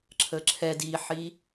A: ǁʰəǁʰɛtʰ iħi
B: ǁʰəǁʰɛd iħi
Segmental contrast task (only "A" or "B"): B